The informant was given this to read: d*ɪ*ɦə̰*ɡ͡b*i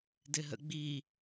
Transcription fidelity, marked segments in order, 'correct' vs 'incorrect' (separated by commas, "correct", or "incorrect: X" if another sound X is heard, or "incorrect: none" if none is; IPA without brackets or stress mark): correct, correct